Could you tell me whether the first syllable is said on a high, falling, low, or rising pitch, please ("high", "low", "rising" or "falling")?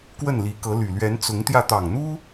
falling